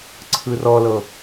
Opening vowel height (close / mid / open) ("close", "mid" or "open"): close